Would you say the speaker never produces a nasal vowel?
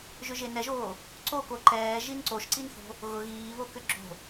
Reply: yes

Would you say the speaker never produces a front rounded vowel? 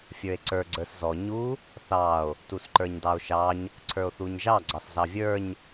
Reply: yes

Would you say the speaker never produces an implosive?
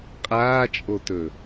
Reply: yes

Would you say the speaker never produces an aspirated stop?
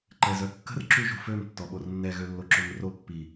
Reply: yes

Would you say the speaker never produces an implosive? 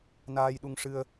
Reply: no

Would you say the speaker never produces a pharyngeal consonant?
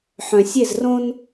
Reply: no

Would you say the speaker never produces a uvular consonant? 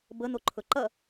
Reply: yes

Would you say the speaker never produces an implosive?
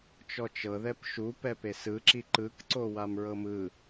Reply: yes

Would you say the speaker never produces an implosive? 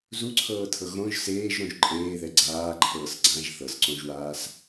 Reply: yes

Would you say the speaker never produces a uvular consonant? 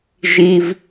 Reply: yes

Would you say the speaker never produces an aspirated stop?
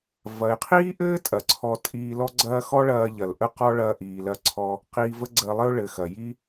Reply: no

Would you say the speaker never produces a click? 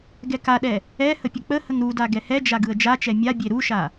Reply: yes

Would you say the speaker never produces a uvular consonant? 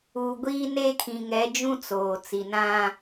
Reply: yes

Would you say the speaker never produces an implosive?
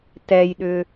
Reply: no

